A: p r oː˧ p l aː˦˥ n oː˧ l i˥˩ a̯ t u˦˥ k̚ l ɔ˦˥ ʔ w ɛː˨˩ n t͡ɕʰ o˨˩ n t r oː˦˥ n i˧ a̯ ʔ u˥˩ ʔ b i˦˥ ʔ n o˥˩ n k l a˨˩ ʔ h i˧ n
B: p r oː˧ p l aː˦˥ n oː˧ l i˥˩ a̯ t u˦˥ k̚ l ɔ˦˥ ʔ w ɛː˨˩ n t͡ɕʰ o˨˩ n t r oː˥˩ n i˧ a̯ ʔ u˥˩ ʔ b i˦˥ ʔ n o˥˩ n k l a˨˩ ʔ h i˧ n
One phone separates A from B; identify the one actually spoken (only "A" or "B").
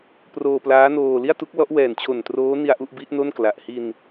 A